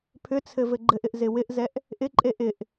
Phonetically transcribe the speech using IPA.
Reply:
pʰ ʏ t͡sʰ ɘ v ɘ ɡ͡ǃ ɘ ʔ ɪ ʔ z ɪ w ɪ ʔ z ɛ ʔ | ʔ ɪ ǃʼ e ʔ ɪ ʔ

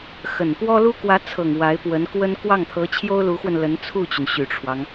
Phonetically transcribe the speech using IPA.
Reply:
x ə˨˩ n p w ɔ˥ l u˥ k w ä˧˥ t͡sʰ ɤ˨˩ ŋ w a˧˥ ɪ̯ p w ə˧˥ n k w ə˥ n k w ɑ˥˩ ŋ t̪ʰ ɤ˧˥ t͡ɕʰ j o˥ ʊ̯ l u˧˥ x w ə˧ n l ə˧˥ n t͡sʰ u˥˩ t͡ɕ y˩ n ɕ y˨˩ ʈ͡ʂʰ w ɑ˦ ŋ

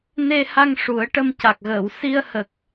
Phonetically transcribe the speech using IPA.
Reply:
n e˧ h a˧ ŋ ʂ u˨˩˦ ə̯ ʈ ə˧ m c a˨˩ k̚ ɣ əː˨˩˨ w s i˧ ə̯ h ə˨˩ k̚

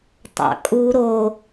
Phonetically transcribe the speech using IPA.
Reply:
tˤ ɑ̰ kʼ u ɾ o

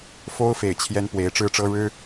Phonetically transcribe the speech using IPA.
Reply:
f o˥ ʊ̯ f e˨˩ ɪ̯ t͡ɕʰ j ɛ˥ n p w e˧˥ ɪ̯ ʈ͡ʂ ɻ̩˥˩ ʈ͡ʂ ɤ˥ ɻ ɻ̩˥

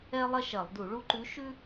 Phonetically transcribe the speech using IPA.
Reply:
ɛ˥ lˠ ɐ˥ ʃ ɐ˧˩˧ lˠ d u˧˩˧ ɭ u˧ ǃ ʉ˨˥ ʃ ʉ˥

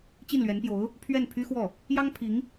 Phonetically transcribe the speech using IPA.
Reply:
t͡ɕ i˥˩ n l ɥ ɛ˧˥ n p j o˧˥ ʊ̯ | pʰ ɥ ɛ˥˩ n pʰ y˥ x w ɔ˥˩ | j ɑ˥ ŋ pʰ i˧˥ ŋ

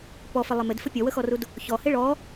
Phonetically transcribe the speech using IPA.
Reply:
p ɔ f ɪ lˠ ɪ m ɪ d f ə pʲ ɔ w ə x ɔ r u d | ç ɔ h ɪ ɭ ɔ

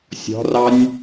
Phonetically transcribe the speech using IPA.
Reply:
sʲ ɔ̤ r ɑ nʲ

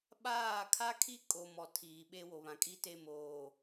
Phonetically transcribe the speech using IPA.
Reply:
ɓ aː˦˨ kʰ a˦ kʰ i˦ kʼ o˨ m ɔ˨ tʰ iː˨ ɓ e˦ w o˨ β ã˨ kʼ i˦ t e˦˨ m oː˨

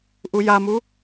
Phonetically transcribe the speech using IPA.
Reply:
ʔ u j a m u

